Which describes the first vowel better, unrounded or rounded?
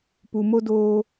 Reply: rounded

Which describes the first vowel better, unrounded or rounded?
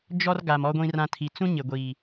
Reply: rounded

